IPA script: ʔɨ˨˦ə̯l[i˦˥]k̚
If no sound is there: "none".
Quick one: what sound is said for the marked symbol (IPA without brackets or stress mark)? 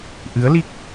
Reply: i˦˥